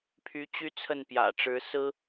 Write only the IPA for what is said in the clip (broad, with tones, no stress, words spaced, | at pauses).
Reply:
pʰy˧˥ t͡ɕy˥t͡sʰə˥˩npjä̰˨˩ ʈ͡ʂɻ̩˧˥sɹ̩˥